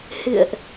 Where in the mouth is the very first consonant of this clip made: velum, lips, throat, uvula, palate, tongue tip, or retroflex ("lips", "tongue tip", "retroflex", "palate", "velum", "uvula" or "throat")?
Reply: throat